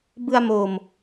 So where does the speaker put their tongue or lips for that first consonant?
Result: lips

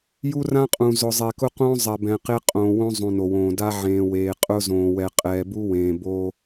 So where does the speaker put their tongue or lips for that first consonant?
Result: palate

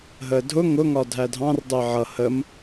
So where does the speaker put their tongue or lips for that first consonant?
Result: throat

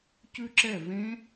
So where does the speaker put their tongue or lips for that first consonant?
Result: palate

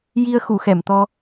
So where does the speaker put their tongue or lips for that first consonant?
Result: palate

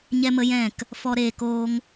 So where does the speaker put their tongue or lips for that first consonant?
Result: palate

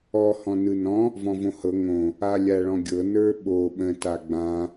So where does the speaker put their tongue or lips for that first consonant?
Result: throat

